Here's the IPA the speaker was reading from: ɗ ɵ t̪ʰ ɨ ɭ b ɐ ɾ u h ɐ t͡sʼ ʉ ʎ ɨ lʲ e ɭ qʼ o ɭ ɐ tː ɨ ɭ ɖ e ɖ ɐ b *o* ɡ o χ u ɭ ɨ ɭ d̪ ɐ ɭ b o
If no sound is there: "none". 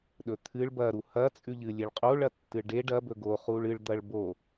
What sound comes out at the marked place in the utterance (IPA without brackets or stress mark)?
ɵ